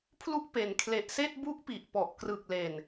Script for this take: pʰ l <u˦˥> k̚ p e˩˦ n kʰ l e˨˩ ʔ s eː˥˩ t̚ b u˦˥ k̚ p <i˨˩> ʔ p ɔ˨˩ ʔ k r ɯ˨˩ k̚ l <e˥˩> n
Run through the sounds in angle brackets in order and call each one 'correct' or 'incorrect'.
correct, correct, incorrect

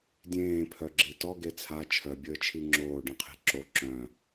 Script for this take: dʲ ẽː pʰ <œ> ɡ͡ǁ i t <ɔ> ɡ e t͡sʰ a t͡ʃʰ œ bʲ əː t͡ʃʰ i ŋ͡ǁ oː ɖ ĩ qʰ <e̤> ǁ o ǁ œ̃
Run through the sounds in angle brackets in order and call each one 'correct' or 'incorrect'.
correct, correct, correct

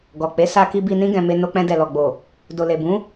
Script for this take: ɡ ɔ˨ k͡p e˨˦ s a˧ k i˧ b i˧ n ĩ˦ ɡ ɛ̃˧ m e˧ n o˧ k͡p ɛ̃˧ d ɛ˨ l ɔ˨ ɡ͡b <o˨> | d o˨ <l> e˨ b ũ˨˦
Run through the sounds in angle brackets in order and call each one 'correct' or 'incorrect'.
correct, correct

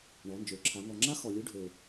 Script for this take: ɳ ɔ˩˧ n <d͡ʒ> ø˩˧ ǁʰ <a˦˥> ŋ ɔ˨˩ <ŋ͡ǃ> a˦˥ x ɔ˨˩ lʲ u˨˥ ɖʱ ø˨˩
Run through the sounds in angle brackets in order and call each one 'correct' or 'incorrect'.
correct, incorrect, incorrect

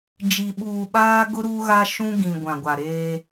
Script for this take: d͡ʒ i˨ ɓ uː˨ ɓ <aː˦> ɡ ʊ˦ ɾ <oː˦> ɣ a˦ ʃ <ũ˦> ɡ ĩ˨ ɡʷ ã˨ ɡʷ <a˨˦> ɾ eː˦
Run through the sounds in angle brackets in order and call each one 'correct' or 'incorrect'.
correct, incorrect, correct, incorrect

